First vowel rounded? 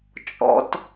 yes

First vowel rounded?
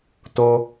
yes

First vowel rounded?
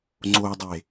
yes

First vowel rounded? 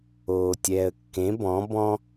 yes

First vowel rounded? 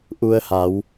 yes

